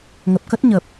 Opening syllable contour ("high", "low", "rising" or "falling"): low